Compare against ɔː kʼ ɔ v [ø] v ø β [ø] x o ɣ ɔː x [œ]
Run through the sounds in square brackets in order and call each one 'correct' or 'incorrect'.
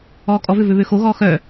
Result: correct, correct, correct

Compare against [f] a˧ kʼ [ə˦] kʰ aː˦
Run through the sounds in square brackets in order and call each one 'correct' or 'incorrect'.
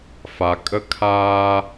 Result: correct, correct

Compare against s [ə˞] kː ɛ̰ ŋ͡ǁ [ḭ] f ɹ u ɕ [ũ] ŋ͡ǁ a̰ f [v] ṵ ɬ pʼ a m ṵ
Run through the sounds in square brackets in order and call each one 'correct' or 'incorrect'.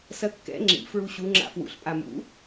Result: incorrect, correct, incorrect, incorrect

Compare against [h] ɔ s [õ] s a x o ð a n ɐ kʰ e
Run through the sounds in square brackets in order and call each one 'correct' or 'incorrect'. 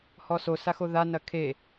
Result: correct, incorrect

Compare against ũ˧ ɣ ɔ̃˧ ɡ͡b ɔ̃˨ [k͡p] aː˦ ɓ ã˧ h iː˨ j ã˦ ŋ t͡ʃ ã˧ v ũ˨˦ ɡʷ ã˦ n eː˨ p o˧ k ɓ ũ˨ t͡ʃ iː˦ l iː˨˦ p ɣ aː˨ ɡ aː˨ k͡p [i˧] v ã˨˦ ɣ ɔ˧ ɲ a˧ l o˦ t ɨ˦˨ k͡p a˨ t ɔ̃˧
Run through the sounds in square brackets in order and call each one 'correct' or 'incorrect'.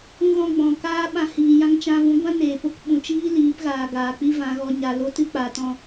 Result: incorrect, incorrect

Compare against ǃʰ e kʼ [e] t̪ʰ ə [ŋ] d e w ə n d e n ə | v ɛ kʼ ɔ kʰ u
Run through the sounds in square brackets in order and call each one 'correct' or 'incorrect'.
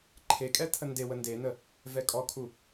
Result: incorrect, incorrect

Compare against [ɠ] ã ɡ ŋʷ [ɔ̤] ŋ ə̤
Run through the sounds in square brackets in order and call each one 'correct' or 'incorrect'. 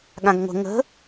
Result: correct, incorrect

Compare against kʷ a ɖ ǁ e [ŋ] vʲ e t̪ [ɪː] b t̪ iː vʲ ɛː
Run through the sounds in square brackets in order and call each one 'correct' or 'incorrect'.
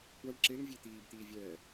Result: correct, incorrect

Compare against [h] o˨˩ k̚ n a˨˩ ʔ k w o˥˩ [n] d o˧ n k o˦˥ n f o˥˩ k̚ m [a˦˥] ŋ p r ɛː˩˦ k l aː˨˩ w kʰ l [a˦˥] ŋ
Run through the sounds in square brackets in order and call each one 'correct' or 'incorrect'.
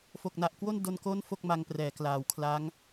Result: incorrect, correct, incorrect, correct

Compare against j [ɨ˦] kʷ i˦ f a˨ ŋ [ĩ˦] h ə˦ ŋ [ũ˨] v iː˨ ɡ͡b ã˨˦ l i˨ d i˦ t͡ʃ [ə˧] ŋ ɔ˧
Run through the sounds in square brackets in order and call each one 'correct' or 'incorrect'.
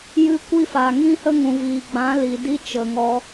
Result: correct, correct, correct, incorrect

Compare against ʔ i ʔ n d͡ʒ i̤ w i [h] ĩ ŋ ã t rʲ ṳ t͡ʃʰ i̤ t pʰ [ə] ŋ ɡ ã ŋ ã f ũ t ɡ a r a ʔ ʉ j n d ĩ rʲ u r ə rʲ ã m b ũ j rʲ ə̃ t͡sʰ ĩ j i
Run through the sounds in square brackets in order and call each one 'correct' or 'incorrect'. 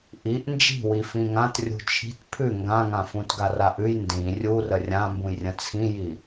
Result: incorrect, incorrect

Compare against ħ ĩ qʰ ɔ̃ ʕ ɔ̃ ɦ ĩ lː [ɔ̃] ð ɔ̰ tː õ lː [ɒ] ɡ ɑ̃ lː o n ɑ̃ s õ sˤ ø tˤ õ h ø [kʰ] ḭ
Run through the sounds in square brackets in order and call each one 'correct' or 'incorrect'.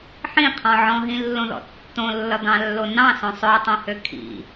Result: incorrect, incorrect, correct

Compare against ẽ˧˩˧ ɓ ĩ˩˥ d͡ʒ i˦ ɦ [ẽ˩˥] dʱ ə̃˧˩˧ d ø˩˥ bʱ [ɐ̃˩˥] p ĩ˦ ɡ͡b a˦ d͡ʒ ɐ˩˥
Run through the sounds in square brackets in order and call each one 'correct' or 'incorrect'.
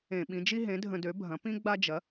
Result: correct, correct

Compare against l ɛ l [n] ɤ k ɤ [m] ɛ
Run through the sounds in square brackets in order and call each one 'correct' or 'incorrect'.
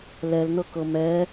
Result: correct, correct

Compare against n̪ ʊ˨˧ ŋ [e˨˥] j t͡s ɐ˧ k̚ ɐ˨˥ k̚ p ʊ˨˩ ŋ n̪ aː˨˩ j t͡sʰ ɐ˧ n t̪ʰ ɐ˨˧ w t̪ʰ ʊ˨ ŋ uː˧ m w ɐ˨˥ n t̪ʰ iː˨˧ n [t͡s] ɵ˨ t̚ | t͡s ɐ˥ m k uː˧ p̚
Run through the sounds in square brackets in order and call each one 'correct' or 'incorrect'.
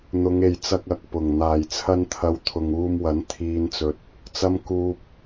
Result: incorrect, correct

